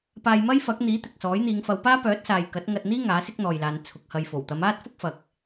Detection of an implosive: absent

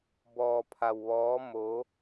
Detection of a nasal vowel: absent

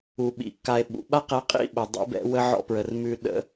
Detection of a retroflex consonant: absent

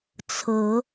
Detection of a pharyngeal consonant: absent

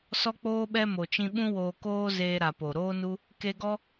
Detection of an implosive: present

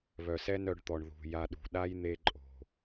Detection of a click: present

